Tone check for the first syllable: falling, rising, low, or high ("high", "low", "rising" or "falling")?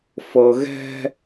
low